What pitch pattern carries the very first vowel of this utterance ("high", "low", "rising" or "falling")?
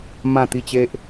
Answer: falling